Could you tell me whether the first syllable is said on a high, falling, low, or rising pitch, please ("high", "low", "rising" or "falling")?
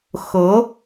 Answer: rising